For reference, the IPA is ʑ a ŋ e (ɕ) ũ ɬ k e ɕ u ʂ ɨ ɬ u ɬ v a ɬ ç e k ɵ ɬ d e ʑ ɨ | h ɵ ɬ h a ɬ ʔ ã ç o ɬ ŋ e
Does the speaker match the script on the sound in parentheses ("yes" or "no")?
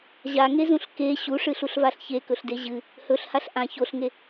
no